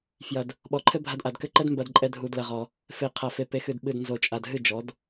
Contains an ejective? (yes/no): yes